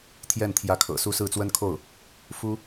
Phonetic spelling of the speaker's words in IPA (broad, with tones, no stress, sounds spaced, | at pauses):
t̪ʰ j ɛ˥˩ n t̪ʰ j ä˧˥ kʰ ɤ̰˨˩ s u˥ s ɹ̩˥˩ t͡s w ə˥ n kʰ o˥˩ ʊ̯ | f u˥